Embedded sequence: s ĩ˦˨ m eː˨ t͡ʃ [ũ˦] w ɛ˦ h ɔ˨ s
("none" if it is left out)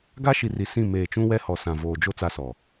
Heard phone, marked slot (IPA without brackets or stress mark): ũ˦